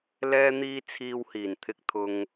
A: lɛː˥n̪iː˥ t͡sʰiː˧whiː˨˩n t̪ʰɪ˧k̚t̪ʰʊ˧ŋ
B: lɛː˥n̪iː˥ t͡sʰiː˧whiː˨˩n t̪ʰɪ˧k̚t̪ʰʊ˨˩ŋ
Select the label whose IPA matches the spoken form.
A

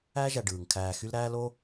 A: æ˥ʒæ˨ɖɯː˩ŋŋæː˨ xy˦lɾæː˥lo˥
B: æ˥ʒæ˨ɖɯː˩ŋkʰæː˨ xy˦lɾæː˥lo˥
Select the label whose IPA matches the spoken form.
B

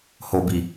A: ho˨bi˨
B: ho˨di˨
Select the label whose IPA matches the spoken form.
A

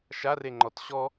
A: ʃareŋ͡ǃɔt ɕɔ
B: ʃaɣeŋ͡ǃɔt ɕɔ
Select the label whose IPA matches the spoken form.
A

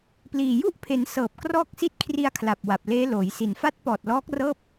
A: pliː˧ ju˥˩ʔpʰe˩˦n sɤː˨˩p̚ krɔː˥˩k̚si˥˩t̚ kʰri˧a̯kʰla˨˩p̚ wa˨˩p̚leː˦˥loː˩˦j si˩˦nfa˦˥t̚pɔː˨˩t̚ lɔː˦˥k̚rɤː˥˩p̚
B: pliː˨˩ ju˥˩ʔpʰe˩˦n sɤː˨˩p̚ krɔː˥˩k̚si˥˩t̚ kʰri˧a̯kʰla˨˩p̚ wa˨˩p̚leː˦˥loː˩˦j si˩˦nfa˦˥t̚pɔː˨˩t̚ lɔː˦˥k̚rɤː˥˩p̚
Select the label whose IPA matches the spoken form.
B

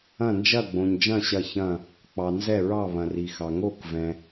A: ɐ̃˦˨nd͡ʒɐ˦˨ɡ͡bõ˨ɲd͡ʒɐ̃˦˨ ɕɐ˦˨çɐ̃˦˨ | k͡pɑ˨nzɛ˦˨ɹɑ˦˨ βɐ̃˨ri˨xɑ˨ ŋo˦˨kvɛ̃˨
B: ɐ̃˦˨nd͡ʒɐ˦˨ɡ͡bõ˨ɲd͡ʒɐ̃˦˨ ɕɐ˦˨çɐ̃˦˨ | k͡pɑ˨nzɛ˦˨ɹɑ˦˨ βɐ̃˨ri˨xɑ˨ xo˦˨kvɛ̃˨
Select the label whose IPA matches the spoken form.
A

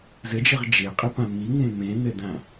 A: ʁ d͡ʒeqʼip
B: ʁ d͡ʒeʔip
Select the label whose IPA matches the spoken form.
A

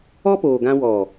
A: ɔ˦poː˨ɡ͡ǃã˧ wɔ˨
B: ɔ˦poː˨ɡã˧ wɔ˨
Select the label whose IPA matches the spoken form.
B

